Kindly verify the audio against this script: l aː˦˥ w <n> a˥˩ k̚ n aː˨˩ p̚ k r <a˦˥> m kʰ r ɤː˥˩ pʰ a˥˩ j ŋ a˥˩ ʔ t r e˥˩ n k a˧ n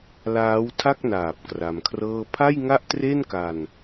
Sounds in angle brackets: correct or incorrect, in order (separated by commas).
incorrect, incorrect